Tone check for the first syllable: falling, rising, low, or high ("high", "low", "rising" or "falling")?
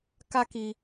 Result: high